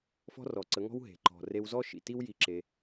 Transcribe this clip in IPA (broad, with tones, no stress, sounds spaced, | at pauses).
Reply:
f ɔ̤˦ r ɔ˨ ǀ ə˨˦ ŋ ɔ̤˦ w ɦ e̤˨ ǃ ɔ̤˨ r e˧ w z ɔ˦ ʃ ḭ˨ t i˦ w j i˧ ǁ e˧